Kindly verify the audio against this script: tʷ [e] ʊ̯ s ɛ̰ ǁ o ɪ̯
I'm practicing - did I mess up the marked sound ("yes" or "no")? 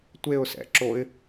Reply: no